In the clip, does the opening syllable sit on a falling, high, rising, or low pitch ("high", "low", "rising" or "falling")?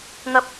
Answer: high